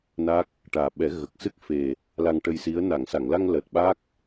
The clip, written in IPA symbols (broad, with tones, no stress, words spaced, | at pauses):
na˦˥k̚ | ʈaː˨˩ɓɛ˨˩˦ ɣə˨˩k̚sɨ˦˥k̚ fe˨˩ | la˧ŋʈə˧jsi˧˥ə̯ na˨˩˨ŋsa˨˩˨ŋla˧ŋ ləː˨˩t̚ɓa˦˥k̚